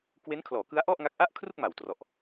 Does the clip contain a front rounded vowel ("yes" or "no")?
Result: no